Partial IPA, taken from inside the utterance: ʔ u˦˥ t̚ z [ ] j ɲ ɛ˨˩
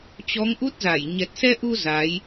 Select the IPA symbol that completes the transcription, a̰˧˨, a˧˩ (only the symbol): a˧˩